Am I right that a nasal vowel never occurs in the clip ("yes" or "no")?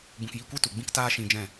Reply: no